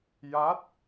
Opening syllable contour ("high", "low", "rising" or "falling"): rising